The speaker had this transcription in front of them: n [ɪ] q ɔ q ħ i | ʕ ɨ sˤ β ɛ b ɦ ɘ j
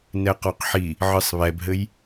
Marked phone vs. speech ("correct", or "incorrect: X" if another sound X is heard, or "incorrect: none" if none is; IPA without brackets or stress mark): incorrect: ɛ